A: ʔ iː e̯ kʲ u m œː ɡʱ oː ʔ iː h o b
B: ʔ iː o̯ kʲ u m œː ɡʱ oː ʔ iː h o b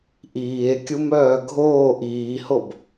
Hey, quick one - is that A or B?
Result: A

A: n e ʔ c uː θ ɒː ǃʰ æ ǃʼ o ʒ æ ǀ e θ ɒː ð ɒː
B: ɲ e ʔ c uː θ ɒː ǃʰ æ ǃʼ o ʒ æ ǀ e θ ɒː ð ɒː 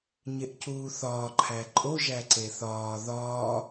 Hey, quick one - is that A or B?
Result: B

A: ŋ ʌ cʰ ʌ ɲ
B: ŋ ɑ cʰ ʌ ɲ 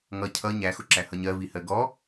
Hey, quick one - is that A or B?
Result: A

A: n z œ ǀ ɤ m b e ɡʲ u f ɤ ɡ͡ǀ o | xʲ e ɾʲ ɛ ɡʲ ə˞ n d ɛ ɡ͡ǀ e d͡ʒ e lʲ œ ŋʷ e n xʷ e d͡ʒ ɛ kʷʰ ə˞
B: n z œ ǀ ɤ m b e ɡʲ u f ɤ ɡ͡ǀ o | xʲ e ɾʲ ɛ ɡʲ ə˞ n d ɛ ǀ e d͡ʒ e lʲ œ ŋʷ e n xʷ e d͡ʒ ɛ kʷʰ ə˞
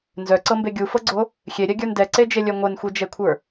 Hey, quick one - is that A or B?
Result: B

